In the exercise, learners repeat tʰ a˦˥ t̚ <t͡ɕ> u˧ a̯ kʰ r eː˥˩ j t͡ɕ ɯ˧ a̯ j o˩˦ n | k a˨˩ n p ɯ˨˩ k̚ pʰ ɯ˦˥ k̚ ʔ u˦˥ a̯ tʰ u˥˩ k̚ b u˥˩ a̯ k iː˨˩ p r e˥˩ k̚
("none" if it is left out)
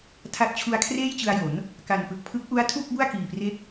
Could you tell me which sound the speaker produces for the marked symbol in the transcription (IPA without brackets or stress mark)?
t͡ɕʰ